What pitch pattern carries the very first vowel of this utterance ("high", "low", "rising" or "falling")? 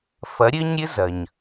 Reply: rising